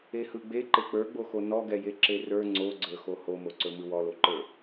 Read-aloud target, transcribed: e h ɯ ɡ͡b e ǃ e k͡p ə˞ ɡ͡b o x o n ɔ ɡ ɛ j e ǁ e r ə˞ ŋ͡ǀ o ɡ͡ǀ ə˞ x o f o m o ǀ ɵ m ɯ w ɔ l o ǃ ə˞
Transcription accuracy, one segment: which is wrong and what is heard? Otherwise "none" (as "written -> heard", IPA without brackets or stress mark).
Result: f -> h